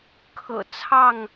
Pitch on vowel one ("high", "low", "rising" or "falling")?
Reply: low